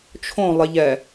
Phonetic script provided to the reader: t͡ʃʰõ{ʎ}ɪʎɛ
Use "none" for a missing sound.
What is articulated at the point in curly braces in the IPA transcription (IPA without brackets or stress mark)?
lˠ